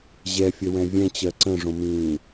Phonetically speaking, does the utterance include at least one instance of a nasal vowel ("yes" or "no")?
yes